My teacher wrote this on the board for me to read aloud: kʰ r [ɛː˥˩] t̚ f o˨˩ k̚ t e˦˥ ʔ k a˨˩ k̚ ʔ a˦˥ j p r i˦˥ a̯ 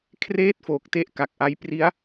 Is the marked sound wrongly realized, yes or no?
yes